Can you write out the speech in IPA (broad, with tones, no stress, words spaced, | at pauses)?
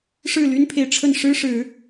ʂɻ̩˥˨ly˦npʰe˨ɪ̯ʈ͡ʂʰə˥˨n ʂɻ̩˦ʂɻ̩˨˦